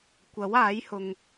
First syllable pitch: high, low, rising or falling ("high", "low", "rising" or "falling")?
rising